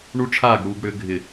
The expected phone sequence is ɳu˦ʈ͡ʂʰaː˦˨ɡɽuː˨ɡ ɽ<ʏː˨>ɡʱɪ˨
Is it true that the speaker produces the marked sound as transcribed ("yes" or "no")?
yes